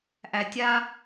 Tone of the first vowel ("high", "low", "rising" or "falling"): low